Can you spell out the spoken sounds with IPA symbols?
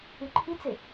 y ǃʰ i t͡s ɪ

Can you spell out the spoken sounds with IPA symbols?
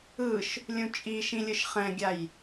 ɯ ʃ | lʲ ũ t͡ʃʼ i ʃ ĩ lʲ ɯ ʃ χ ɛ̃ ɡʲ a j

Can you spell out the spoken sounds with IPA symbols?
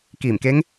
k iː˧˩ m k e˧˥ ŋ

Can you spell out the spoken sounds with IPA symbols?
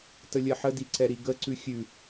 t ə lʲ ɜ ħ ə d i ǀ ɛ ɾ i ɡ ə ǀ ʉ xʲ ʉ

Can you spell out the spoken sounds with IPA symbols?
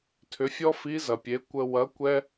tʰ ʏ˩˧ fʲ ɔ˥ f i˧˥ z ɐ˩ pʲ e˩˧ kʷ ə˧ w ɐ˧˥ kʷ ɛ˥

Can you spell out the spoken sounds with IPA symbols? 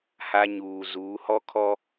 h a˦ ɲ uː˨ z uː˨˦ h ɔ˦ kʰ ɔ˦

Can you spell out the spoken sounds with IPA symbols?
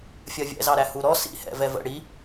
fʲ ɜ vʲ ɛ̰ z ɑ ɾ æ h u ɾ ɔ s ḭ h ɛ̰ v ɛ v ə̰ ɽ i

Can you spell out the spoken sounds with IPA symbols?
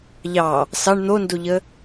ʎ ɑ | s ɑ ɳ n̪ o n d o ʎ ə

